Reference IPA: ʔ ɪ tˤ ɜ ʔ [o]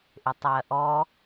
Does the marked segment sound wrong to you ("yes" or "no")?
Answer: yes